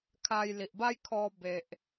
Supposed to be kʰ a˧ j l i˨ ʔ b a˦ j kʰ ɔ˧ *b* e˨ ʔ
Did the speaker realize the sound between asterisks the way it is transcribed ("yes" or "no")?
yes